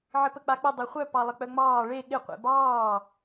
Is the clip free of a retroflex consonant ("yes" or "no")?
no